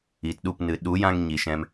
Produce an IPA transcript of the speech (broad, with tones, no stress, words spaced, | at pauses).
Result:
i˨tɗu˦˨p nɨ˨ ɗu˨˦jã˧ŋ ɲi˨ʃɛ̃˧m